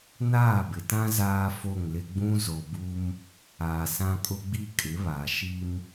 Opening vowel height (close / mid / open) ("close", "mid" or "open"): open